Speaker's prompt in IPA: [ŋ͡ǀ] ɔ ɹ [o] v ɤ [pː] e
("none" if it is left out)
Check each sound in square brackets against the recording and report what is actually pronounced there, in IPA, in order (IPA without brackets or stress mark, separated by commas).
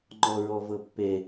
ŋ͡ǃ, ɔ, pː